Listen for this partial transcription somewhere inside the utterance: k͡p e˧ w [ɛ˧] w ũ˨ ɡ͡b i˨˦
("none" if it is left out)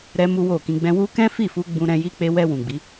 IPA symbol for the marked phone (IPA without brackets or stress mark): ɛ˧